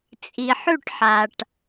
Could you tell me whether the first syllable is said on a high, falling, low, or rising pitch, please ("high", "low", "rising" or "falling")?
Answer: low